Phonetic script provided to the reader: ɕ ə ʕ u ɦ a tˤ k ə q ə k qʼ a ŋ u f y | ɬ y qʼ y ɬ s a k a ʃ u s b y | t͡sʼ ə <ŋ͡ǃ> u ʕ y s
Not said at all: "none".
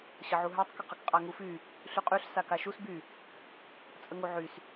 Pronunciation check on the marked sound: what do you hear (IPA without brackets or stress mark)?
ŋ